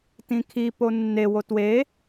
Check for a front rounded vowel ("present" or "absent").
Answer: absent